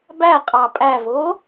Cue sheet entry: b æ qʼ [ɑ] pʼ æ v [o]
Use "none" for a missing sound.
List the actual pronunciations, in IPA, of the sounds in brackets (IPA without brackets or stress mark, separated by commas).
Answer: ɑ, o